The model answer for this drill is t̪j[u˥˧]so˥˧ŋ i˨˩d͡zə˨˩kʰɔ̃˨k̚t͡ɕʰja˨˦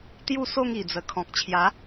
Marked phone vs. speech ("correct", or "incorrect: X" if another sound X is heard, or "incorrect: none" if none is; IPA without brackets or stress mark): correct